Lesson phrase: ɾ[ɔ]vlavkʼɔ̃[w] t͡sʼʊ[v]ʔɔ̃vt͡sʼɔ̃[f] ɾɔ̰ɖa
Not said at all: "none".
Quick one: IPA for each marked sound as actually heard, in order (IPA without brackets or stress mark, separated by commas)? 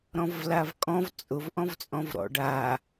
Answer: ɔ̃, v, v, v